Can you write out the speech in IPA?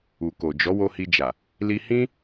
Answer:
u˨ k o˨ d͡ʒ ɔ˨˦ w o˧ h i˧ d͡ʒ a˨ | l i˧ h ĩ˦

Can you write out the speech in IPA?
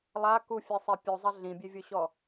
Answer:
lˠ a k u fʲ ɛ sˤ e pʲ u zˤ ɛ ɮ ĩ bʲ e vʲ o ɕ ɔ

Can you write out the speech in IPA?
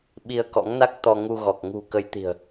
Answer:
ɓ i˧ ə̯ k ɔ̰˧˥ ŋ n a˦˥ k̚ t̪ ɔ˧ ŋ u˧ ɣ ɔ˨˩ k̚ ŋ ṳ˨˩ k ə˨˦ j t̪ i̤˨˩ ə̯

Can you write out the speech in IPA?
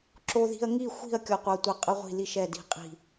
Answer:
ǁ o˥ ð i̤˥ ɐ̯ ŋ i˥˧ xʷ i̤˥˧ ɐ̯ kʲ ɔ˥ qʷ a˥ tʷ ɐ˥ qʼ ə˥ ʁʷ i̤˥˧ l i˥˧ ʃ ɛ˥˧ d i̤˥˧ qʼ i̤˥˧

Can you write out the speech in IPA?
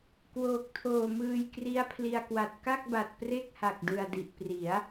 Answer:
k w oː˨˩ k̚ tʰ oː˨˩ m ɯː˧ j k r i˦˥ a̯ pʰ l i˧ a̯ k w a˨˩ t̚ k a˥˩ k̚ b a˨˩ t̚ p r e˥˩ k̚ h a˨˩ k̚ d ɯ˨˩ a̯ d i˨˩ ʔ p r i˩˦ a̯

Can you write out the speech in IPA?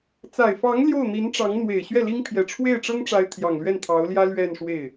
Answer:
t͡s a˨˩ ɪ̯ f ɑ˧˥ ŋ l j o˥˩ ʊ̯ n̪ i˧˥ n ʈ͡ʂ ɑ˧˥ ŋ n̪ w e˨˩ ɪ̯ ɕ ɥ ɛ˥˩ l i˥ ŋ pʰ j ɛ˨˩ ʈ͡ʂʰ w e˥˩ ɪ̯ ʈ͡ʂ ɤ˥ ŋ ʈ͡ʂ a˧˥ ɪ̯ t̪ʰ j ɑ˨˩ ŋ l ɥ ɛ˥˩ n t̪ʰ ɑ˧˥ ʊ̯ l j ä˥ l ɥ ɛ˥˧ n ʂ w e˥˩ ɪ̯

